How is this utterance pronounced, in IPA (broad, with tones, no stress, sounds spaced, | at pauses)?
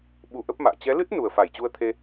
ɓ u˧ ʔ ə˦˥ p̚ m a̰ː˧˨ t͡ɕ ɛ˨˦ l ɨ˦˥ t̚ n u˨˩ ə̯ f a˧˩ j t͡ɕ u˧ ə̯ t̪ʰ e˧